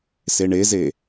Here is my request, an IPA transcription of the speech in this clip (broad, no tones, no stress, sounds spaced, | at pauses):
s e ɳ e z e